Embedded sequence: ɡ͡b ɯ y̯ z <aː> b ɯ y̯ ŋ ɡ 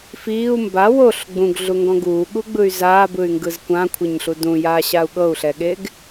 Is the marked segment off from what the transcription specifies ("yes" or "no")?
no